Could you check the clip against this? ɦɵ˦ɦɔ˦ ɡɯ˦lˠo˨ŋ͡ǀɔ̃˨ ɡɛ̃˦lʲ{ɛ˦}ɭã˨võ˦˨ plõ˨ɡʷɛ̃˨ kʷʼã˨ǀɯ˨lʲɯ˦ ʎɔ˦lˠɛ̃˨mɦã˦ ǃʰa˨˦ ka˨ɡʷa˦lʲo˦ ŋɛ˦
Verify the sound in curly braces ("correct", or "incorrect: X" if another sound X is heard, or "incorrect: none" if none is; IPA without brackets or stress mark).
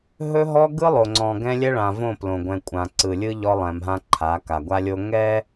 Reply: correct